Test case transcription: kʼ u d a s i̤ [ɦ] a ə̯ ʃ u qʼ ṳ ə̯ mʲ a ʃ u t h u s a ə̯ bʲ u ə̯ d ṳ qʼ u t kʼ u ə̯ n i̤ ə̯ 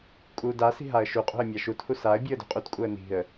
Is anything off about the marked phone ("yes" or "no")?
no